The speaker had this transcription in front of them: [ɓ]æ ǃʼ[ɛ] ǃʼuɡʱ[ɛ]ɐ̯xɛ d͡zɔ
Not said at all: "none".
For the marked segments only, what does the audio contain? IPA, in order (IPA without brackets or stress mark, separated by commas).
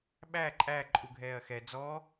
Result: ɓ, æ, ɛː